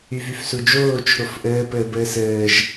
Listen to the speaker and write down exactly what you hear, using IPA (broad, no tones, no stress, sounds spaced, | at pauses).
y v y f s u d͡ʒ oː t͡ʃʰ o f ʔ əː p əː b əː s əː ʒ